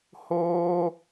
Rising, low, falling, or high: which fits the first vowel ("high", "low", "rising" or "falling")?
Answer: high